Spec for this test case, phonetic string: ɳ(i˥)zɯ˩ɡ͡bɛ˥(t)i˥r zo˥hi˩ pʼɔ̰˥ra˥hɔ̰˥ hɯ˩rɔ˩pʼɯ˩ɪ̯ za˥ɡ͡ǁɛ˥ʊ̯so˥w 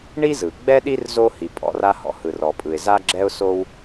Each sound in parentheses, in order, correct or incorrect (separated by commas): correct, incorrect